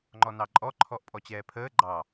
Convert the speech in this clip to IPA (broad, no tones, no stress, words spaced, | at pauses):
ŋ͡ǃɔnɑǃʼɔ ǃʰɔʔpʼɔt͡ɕɛːpʰəː ɡ͡ǃɑ